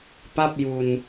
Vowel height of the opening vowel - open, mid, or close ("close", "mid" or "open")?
open